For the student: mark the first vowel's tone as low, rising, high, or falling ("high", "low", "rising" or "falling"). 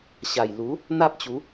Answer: low